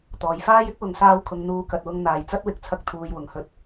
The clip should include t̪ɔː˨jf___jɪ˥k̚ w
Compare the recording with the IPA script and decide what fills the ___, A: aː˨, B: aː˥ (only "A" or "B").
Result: B